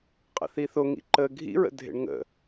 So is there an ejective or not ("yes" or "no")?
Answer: yes